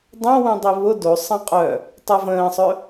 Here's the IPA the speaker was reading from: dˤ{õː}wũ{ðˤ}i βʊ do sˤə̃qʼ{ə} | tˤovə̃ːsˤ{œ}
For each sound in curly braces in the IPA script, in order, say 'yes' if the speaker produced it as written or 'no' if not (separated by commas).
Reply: no, no, no, yes